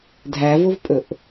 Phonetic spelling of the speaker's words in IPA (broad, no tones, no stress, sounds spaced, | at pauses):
dʱ æ v o v pʼ ɵ ʔ